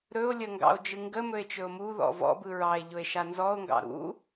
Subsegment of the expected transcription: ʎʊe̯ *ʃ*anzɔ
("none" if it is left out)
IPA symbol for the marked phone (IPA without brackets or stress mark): ʃ